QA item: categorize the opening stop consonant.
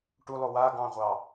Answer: plain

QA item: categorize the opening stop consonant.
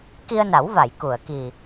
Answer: plain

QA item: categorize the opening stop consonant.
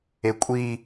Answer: ejective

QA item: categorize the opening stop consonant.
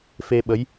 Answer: implosive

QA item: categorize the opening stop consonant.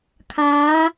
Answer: aspirated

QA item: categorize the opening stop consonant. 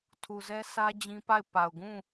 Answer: aspirated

